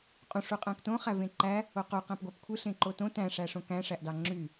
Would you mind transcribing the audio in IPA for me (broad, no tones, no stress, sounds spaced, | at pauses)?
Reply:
qʼ ũ ʂ u qʼ æ̃ k t õ χ æ v ẽ ǃ æ | o q o q æ̃ p ɡʷ æ p kʷʰ ɯ ɬ ẽ ǃ o t õ t æ̃ ʂ æ ʂ õ k æ̃ ʂ æ ʔ d ɑ ŋ͡ǁ y